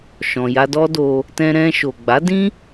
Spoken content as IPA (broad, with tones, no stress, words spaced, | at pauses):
ʃɔ̃˨ ja˧dɔ˦do˧ | tɛ̃˧ɾɛ̃˧ ʃo˨ɡ͡ba˨˦dĩ˦